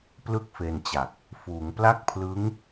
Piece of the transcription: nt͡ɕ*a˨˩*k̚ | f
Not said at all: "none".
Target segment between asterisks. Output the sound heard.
a˨˩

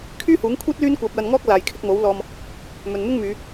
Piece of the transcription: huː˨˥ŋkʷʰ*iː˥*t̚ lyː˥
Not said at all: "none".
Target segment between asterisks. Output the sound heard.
iː˥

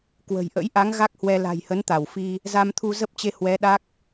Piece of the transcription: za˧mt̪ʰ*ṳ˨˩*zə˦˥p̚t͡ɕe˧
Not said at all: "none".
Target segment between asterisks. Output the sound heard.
u˧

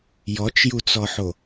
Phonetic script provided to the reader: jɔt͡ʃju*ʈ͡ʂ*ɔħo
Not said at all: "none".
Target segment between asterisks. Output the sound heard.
t͡s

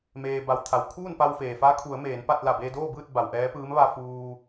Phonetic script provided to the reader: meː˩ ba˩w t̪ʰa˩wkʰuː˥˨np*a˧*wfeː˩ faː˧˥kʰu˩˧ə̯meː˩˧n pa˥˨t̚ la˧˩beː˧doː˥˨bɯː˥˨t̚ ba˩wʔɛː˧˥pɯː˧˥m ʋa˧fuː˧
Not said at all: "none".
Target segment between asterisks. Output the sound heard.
a˧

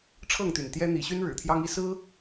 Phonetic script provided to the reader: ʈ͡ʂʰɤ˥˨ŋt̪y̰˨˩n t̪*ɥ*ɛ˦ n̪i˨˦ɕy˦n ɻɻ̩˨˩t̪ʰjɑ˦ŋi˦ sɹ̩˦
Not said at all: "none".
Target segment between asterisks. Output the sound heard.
j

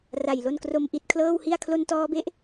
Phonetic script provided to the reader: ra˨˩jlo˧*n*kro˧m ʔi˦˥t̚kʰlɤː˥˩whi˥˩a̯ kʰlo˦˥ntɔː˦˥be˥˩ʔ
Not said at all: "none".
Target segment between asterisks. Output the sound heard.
n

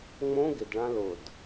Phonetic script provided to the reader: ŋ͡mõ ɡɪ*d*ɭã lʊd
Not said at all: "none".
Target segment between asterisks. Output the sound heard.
d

